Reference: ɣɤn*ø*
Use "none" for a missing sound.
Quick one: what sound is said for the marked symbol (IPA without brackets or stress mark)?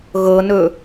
ɵ